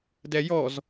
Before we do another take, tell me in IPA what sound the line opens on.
d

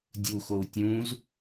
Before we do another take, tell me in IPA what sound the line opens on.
dʲ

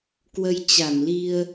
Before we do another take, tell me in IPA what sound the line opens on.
k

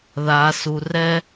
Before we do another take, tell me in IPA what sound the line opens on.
ð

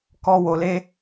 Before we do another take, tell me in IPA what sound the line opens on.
k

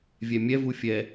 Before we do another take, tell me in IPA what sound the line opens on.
vʲ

